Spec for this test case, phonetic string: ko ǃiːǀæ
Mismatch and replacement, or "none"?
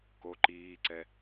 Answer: æ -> ɛ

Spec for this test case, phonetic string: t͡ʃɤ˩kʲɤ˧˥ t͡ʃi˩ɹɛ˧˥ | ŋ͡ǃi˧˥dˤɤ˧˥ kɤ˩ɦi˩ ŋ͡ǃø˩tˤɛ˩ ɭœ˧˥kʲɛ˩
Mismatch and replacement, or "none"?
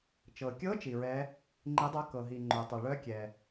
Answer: none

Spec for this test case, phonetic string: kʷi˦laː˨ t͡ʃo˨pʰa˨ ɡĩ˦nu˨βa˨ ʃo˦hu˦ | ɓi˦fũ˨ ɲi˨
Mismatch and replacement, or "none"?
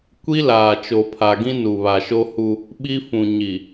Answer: none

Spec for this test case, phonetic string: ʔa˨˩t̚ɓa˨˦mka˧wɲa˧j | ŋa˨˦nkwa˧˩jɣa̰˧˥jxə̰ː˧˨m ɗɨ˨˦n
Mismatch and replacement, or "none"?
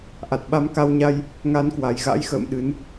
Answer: none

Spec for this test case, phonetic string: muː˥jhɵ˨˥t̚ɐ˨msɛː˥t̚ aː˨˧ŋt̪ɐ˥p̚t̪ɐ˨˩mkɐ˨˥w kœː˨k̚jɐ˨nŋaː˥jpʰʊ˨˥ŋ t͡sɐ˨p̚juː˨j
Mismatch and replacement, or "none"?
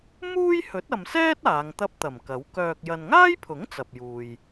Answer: none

